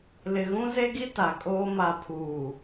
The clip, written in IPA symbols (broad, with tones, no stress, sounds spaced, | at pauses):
l ɪ˨ ɣ ũ˦ z e˦ ɡ i˦ t a˨ kʼ oː˦ m a˨ pʰ uː˨